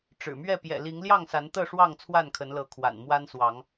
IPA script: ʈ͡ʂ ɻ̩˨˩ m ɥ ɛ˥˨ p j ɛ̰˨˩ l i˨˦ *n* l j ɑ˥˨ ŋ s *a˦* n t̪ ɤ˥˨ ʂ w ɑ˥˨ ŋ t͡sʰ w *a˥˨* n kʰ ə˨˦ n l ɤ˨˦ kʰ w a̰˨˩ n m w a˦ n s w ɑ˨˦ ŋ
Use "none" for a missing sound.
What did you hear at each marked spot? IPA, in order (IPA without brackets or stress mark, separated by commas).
ŋ, a˨˦, a˥˨